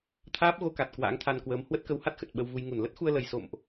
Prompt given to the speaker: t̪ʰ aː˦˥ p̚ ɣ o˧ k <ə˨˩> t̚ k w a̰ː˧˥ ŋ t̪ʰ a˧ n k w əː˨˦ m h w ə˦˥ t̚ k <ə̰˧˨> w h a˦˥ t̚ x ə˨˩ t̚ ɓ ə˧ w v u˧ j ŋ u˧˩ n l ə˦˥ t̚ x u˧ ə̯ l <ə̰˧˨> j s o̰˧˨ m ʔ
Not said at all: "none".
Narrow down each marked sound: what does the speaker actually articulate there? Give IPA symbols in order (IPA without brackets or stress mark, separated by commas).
a˨˩, ə˨˦, ə˨˩